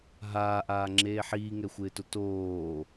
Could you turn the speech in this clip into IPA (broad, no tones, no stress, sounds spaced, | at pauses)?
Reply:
ɦ aː ʔ aː ŋ͡ǁ eː ħ iː ŋ ɛ xʷ ɪː t ʊ t oː